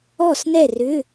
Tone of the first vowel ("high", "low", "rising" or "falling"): falling